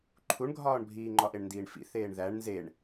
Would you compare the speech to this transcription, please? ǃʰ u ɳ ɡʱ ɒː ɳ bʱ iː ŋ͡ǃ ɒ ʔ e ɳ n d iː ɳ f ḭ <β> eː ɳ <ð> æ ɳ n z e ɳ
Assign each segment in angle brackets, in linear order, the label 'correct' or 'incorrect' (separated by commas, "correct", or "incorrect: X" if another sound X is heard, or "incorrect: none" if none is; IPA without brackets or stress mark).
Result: incorrect: θ, correct